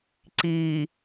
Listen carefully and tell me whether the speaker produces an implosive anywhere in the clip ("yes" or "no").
no